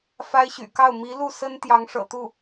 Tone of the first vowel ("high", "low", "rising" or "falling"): high